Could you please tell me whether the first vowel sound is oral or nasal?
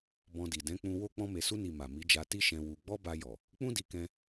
nasal